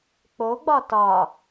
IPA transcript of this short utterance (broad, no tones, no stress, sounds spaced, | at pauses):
k͡p o ɡ͡b ɒ t ɒ